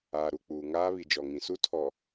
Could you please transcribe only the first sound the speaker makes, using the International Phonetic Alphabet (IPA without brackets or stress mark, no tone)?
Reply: aː